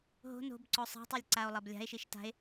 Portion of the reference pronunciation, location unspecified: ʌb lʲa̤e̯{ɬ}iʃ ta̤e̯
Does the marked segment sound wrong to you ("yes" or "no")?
yes